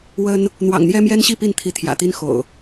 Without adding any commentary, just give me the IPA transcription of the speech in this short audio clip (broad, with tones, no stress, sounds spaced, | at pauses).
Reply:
w ə˦ n | n̪ w ɑ̰˨˩ ŋ n̪ j ɛ˦ m j ɛ˦ n ɕ i˥˨ p i˥˨ n t̪ʰ i˨˦ t̪ʰ j ä̰˨˩ t̪ i˦ n x o̰˨˩ ʊ̯